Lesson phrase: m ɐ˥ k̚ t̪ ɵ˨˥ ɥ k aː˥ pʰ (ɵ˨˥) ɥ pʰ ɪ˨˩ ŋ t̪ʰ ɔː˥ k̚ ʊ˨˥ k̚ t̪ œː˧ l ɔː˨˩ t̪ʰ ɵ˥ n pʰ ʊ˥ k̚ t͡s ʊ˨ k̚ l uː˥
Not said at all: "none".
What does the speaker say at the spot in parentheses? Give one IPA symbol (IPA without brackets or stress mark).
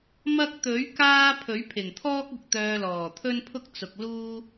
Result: ɵ˨˥